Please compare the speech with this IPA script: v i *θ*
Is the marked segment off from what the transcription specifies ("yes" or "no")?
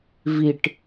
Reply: yes